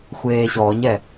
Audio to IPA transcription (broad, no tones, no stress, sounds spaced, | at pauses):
xʷ eː ɕ ɔ ɲ ɛ